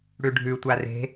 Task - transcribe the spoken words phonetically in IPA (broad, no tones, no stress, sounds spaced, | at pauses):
ɽ ʉ ɖʱ ʉ tʷ a r e̤